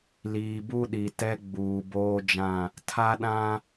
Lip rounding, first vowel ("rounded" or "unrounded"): unrounded